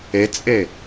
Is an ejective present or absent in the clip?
present